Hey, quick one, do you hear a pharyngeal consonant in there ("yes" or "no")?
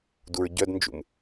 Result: no